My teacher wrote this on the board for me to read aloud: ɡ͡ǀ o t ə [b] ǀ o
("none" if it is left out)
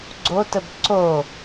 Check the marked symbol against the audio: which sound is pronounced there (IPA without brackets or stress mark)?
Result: b